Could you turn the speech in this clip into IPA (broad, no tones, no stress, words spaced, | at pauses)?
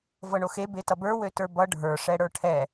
vɤɳoxe betʌbə˞ wøtə˞bʌ ɖʱə˞ ʂɛɽə˞ʈʰɛ